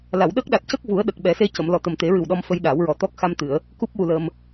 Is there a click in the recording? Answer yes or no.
no